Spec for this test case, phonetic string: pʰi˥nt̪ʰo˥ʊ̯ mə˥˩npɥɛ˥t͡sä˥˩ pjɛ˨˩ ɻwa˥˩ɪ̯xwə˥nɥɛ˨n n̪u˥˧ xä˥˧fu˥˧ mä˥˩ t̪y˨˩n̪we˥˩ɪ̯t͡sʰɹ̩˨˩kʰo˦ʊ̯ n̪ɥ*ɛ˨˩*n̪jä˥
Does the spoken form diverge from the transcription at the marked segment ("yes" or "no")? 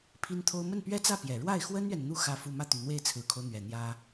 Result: no